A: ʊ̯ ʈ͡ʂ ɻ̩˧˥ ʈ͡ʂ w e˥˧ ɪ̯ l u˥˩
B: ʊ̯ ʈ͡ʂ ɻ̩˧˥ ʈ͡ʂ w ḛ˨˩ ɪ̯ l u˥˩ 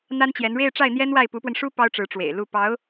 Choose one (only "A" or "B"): B